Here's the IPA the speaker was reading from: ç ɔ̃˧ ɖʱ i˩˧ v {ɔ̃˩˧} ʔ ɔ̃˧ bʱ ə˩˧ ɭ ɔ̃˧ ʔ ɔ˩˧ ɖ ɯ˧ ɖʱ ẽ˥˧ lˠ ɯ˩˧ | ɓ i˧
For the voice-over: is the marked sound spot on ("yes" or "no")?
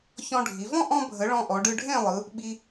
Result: no